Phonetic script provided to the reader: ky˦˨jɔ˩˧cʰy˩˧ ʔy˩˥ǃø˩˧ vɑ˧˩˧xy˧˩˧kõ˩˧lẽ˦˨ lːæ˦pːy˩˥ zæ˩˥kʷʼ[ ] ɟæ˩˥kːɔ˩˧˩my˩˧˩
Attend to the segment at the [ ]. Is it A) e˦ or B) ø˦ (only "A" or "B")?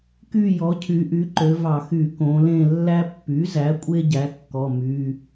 A